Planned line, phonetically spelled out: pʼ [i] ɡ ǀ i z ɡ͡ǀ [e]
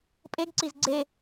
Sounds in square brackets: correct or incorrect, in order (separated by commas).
incorrect, correct